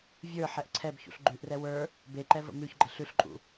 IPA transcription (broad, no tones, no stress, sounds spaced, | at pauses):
vʲ ə˞ ħ ɛ ʔ ǀʰ ɛ b ç ṵ ɬ ɡ͡ǃ ʉ ʔ r ɛ w ə˞ | b e ǃ ɛ v ə̰ m ʉ ç ɡ͡ǃ ə ɬ ʉ ɬ ǃʼ ṵ